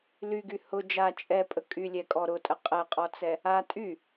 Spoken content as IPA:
l y ɡ y h ʊ d͡ʒ a t͡ʃʼ ɛ pʼ ə kʼ y lʲ ɛ kʼ ɔ ɾ ʊ tʼ ə qʼ ɛ qʼ ɔ t͡s ɛ | a tʼ y

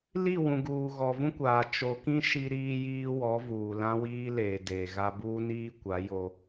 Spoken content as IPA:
l i˦˨ w ũ˨ ɡ uː˨ ɣ ɔ˨ v ũ˦ kʷ aː˨ t͡ʃ o˨ k ĩ˦ ʃ i˦ ɾ iː˦ j iː˦ w ɔ˨˦ v uː˨ l ã˦ w iː˦ l eː˨ d eː˨ ɣ a˦ b uː˦ n iː˦ kʷ a˨˦ j o˦

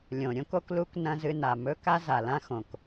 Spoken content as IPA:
lʲ õ˨ ɾʲ õ˦ k o˦ k l u˦ k n ɐ̃˦ z ɨ˧ n a˨ m ɵ˦ k a˦ z a˨ l ã˦ x õ˨ k

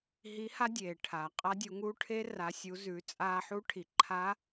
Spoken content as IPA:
ɦ i˧˥ h a˥ dʲ eː˩ ʈʰ aː˩ qʼ a˧˥ dʲ u˩˧ ŋ uː˧˥ ʈʰ e˧˥ r a˩˧ sʲ u˩˧ z ʉ˩˧ t͡sʼ aː˧ ħ u˧˥ ʈʰ i˩ ǃʰ a˧˥

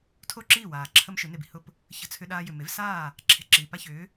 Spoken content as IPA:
tʰ o˥˩ ǁ iː˥˩ w aː˩ ǁʰ ə˥ m ʃ ʏ˩˥ n e˩ b i̤˩ h ʊ˥˩ p | ç ə̤˧ t͡sʰ ʏ˧ ɗ aː˧ j ʏ˩ m e˩˥ v s aː˥˩ | ǁʰ e̤˧ ǁ iː˩ p a˥ ç ʏː˩˥

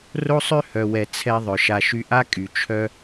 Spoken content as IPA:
r o˦ sˤ ø˦ h œ˨ w ɛ˨ t͡sʰ ɛ˧ ðˤ œ˨ ʃ a˧ ʃ y˦ ʔ a˦ kʼ y˨ t͡ʃʰ œ˧

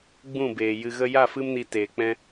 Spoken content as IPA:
ɡ͡b ũ˦˨ b eː˨ j ɨ˨ ɣ ə˧ j a˦˨ f ɨ˦ m n i˧ t eː˨ k͡p ɛ̃˦

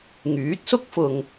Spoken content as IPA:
ŋ yː˨˥ t̚ s ʊ˥ k̚ f ʊ˨ ŋ

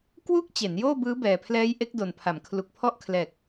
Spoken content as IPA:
k w uː˥˩ k̚ t͡ɕ e˩˦ n j oː˥˩ b ɯː˦˥ b ɛː˨˩ pʰ l ɛː˦˥ j ʔ e˦˥ k̚ d o˨˩ n pʰ a˩˦ m kʰ l u˨˩ k̚ pʰ ɔ˦˥ ʔ kʰ l ɛː˨˩ k̚

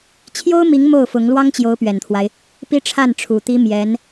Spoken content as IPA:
t͡ɕʰ j o˥ ʊ̯ m i˧˥ ŋ m o˥˩ ʊ̯ f ʊ˧˥ ŋ l w ɑ˥ ŋ t͡ɕ j o˧˥ ʊ̯ p ɥ ɛ˨˩ n t̪ʰ w a˦ ɪ̯ | p i˥ ʈ͡ʂʰ a˥˩ n ʈ͡ʂʰ u˨˩ t̪ i˥ m j ɛ˧˥ n

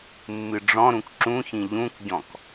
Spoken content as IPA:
mː ɨ ɖ͡ʐ ɔ̃ ɾ ũ k ǁ ũ ç ĩ ʎ ũ k ɟ ɔ̃ k

